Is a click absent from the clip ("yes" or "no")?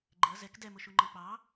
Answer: no